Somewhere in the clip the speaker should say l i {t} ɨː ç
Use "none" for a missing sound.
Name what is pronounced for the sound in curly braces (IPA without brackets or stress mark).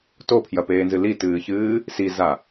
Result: t